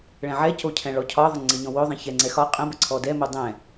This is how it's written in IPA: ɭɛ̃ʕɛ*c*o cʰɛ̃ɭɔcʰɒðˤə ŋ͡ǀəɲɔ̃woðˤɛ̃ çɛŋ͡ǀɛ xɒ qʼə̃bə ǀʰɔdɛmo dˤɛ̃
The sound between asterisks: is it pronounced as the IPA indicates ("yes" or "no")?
yes